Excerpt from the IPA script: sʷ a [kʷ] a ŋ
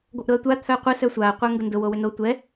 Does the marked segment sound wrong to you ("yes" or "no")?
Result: yes